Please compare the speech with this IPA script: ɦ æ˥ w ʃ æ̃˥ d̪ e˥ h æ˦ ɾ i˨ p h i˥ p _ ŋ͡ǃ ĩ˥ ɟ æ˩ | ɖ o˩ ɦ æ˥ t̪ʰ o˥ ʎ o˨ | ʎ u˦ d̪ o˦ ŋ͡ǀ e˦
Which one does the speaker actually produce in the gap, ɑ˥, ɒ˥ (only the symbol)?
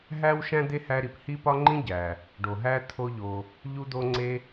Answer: ɒ˥